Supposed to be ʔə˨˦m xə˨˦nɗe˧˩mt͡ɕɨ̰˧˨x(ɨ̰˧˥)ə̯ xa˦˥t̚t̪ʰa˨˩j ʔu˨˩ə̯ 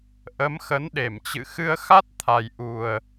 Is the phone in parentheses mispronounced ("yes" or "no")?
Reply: yes